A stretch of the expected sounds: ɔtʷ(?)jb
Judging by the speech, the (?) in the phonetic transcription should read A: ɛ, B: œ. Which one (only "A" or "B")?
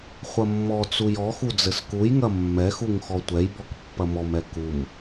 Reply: A